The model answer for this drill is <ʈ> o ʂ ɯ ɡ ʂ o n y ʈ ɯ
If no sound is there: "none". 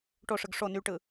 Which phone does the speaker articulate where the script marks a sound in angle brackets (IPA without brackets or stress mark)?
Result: ʈ